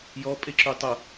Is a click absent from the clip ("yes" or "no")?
no